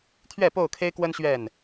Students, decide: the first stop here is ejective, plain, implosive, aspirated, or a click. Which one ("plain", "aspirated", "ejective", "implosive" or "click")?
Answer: aspirated